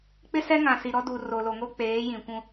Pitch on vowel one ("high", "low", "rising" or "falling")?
high